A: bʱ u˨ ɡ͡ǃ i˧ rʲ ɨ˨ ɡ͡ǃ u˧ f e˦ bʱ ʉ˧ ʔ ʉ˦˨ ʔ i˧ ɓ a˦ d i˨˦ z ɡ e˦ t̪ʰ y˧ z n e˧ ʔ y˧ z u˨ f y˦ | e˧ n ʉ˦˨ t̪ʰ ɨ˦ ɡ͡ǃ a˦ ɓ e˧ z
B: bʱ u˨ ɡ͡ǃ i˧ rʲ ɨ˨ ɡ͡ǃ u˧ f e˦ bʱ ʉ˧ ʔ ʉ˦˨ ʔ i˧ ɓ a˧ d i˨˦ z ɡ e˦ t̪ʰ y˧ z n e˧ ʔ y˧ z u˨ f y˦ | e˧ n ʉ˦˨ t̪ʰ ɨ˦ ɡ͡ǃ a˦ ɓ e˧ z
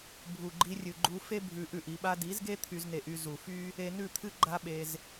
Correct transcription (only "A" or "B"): B